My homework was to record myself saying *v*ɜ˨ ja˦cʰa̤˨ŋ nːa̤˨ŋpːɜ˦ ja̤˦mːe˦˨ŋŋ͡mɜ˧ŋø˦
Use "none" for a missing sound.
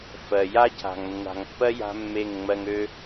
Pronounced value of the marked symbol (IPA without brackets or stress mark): f